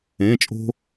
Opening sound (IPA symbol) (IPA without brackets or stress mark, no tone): ẽ